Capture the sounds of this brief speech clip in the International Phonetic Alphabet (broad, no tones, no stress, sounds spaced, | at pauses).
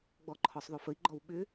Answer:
ɡ͡b ɔ ǃʰ ɔ sˤ ðˤ o f ə i̯ ɡ͡ǃ ɔ w ɓ ʏ